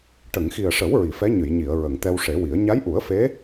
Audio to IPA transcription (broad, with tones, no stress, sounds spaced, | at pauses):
ʈ ə˨˩˨ ŋ x i˨˩ ə̯ ʂ ə˨˩˦ w ɹ i˨˩˨ f ɛ˧˥ ɲ ɨ˨˩˨ j ɲ i˨˩˨ ə̯ ɹ ə˨˩˨ ŋ t̪ ɛ˧ w ʂ e˨˩˦ w i˨˩˦ ə̯ ɲ a˧˥ j ʔ u˨˩˦ ə̯ f e˧˥